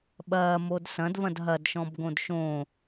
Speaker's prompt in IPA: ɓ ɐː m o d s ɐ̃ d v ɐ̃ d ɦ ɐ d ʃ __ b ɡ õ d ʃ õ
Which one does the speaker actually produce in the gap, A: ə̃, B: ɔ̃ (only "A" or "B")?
B